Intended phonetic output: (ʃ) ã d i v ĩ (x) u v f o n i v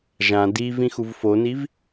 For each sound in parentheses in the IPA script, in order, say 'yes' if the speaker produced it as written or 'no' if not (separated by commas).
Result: no, yes